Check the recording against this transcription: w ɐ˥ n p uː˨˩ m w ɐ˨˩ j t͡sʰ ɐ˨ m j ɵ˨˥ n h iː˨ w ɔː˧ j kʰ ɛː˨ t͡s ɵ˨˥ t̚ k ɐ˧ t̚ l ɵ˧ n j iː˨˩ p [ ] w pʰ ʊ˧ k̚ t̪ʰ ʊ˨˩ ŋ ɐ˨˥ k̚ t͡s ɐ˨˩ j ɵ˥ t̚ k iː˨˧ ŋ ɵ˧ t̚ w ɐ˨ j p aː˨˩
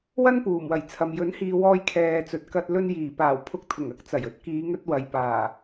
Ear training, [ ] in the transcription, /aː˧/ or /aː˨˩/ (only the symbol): aː˨˩